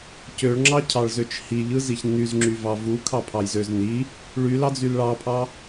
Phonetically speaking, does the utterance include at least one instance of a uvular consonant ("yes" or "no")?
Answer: no